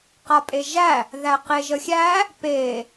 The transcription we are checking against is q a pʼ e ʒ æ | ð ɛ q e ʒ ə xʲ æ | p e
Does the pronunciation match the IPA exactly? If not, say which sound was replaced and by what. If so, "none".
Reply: ɛ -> æ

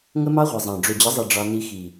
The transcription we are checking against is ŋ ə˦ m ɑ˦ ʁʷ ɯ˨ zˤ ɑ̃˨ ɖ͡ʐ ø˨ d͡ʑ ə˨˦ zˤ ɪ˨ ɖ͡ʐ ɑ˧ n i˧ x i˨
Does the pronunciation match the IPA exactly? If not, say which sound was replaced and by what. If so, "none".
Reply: ɪ˨ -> i˨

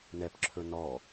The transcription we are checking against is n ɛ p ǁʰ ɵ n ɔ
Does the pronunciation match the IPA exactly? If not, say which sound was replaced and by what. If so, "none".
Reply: none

